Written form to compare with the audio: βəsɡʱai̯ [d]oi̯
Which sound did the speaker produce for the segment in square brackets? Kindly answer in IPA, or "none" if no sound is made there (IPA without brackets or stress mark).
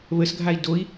d